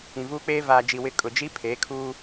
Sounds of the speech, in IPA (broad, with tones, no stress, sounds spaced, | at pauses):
ĩ˨ v uː˦ k͡p eː˦ v aː˨ d͡ʒ i˨ w ɪ˦ kʼ ʊ˨ d͡ʒ i˦ pʰ eː˨˦ kʰ uː˦